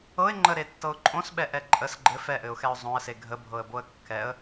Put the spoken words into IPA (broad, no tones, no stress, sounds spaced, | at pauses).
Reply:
ɤ ɪ̯ ŋ͡ǃ ə ɾ e tː ɤ ʊ̯ ǃʼ õ s ɓ ɛ ʔ ɛ ǃʼ ə s ɡ͡ǃ ɘ f ɛ ʔ ɘ ʊ̯ x ɛ ʊ̯ zˤ õ ə̯ s e ɡʱ ə bʱ ɤ ə̯ b o ə̯ kː ɛ ə̯